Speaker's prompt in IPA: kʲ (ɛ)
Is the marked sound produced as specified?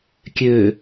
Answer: no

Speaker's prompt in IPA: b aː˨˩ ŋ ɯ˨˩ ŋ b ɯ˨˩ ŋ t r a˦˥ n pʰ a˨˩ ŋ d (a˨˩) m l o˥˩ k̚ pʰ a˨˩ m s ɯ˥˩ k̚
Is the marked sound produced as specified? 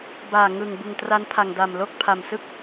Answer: yes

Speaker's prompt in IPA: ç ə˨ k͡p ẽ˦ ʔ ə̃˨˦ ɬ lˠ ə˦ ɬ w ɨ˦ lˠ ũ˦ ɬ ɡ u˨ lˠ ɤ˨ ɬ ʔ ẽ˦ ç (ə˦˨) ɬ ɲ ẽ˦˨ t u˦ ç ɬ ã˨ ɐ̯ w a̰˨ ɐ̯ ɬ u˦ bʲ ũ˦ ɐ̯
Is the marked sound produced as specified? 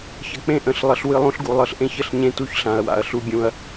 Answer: yes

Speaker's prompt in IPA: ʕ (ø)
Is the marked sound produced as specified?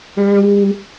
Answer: no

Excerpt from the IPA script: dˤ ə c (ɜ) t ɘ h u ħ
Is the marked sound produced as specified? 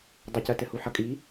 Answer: yes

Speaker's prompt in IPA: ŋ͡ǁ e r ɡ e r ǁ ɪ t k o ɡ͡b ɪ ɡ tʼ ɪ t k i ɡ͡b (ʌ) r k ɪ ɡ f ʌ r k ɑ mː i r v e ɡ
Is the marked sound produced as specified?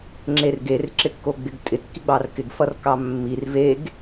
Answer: no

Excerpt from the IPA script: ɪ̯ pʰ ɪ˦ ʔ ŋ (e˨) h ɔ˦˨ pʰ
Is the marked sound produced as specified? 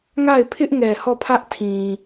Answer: no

